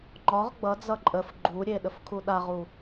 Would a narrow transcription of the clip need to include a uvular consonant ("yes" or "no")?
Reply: yes